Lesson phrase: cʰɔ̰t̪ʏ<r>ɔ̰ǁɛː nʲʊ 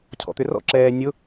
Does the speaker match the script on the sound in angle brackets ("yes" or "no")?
yes